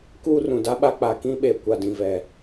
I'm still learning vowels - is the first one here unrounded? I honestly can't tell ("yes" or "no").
no